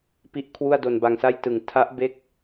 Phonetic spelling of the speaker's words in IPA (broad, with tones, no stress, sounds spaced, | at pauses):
p i˦˥ ʔ kʰ w u˥˩ a̯ d o˧ n b a˧ ŋ s a˥˩ j t ɯ˨˩ ŋ tʰ a˦˥ ʔ b e˦˥ k̚